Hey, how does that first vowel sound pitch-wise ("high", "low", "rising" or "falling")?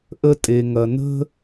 high